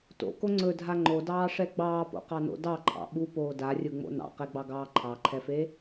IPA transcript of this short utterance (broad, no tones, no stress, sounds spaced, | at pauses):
t o̰ k o ŋ͡ǀ ɵ dʱ a ŋ͡ǃ o d ɑː ʂ ɛ ɡ͡b ɑː p o̰ q ɑ n o̰ d ɑ ǃʰ ɑ̰ ɓ u p oː d a rʲ ɯ ŋ͡m o̰ n ɑ̰ q ɛ ɡ͡b ɑ ɡ ɑː ǃʰ ɑ ǃʰ ɛ f e